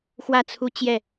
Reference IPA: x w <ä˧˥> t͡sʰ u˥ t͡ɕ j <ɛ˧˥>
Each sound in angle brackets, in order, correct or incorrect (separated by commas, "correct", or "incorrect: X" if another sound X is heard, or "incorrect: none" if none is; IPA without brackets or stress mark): incorrect: ä˥˩, incorrect: ɛ˥˩